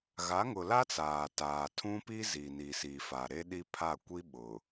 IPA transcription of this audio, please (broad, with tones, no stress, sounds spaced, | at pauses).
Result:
ɣ a˨˦ ŋ ʊ˨ l a˦ t͡s aː˨ t aː˨ tʰ ũ˦ p i˦ z i˨ n i˨ s i˨ f a˨ ɾ e˦ ɗ i˦ pʰ a˦˨ kʷ i˦ ɓ ʊ˨